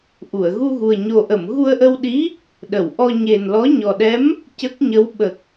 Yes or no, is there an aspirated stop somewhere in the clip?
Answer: no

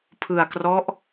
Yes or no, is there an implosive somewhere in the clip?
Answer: no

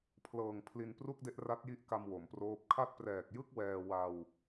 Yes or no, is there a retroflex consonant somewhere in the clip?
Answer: no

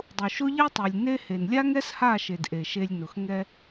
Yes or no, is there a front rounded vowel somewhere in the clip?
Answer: no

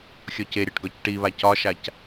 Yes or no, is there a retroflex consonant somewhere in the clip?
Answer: yes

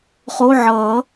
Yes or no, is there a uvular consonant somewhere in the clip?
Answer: yes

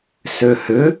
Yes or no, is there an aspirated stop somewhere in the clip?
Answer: no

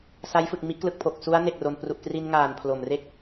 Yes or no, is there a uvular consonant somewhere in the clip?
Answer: no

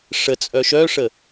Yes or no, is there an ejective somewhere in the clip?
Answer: yes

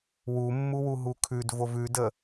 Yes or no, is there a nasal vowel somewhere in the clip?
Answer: no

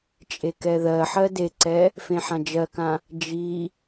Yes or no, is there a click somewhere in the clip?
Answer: yes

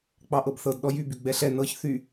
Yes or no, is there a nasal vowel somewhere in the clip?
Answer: no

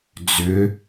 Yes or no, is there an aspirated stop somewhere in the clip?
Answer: no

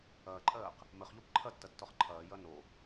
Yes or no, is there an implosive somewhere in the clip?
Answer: no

